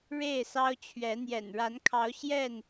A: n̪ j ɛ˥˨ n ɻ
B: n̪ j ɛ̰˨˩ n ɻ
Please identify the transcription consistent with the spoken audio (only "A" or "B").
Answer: B